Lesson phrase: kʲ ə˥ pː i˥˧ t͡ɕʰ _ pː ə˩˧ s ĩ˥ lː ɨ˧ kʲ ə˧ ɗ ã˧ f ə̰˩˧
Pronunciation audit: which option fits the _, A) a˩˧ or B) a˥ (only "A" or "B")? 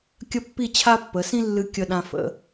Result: B